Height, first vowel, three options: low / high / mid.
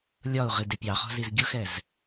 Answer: low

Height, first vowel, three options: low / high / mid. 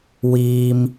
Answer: high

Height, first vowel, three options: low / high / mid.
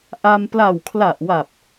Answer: low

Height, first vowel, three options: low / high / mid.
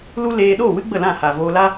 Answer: high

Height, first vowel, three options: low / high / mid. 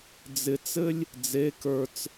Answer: high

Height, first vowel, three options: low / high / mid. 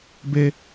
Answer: mid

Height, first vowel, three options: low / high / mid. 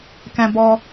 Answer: mid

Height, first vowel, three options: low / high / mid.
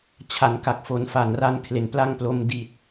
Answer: low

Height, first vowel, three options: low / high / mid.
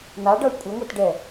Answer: low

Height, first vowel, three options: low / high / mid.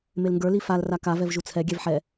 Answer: mid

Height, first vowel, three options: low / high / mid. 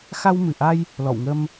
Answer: low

